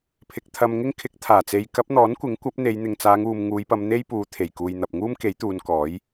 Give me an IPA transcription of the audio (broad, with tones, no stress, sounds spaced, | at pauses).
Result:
pʰ ɪ˨ k̚ t̪ʰ ɐ˧ m ŋ ɪ˥ ŋ kʰ ɪ˨˥ k̚ t̪ʰ aː˨˩ t͡s e˨˧ j k ɐ˨˥ p̚ n̪ ɔː˨˥ n kʷ ɪ˨˥ ŋ kʷ ɐ˨˥ p̚ n̪ e˨˧ j n̪ ɪ˨ ŋ t͡s aː˨˧ ŋ uː˨ m ŋ uː˨˧ j p ɐ˨˧ m n̪ e˥ j p uː˨˧ t̪ʰ e˨˩ j k uː˨ j n̪ ɐ˨ p̚ ŋ uː˥ m k e˨˥ j t̪ uː˨˧ n k ɔː˨˥ j